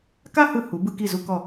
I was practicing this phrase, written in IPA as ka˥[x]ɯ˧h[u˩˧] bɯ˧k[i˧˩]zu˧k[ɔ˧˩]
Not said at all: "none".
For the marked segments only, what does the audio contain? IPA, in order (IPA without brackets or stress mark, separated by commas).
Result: h, u˩˧, i˧˩, ɔ˧˩